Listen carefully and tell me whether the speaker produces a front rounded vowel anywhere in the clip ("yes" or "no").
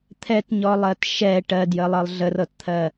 no